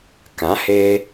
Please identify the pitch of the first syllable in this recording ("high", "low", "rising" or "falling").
rising